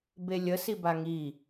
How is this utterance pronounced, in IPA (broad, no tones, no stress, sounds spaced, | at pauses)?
b e lʲ ə s i b a ŋ i